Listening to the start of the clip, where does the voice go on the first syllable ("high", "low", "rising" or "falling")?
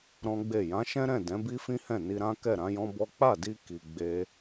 high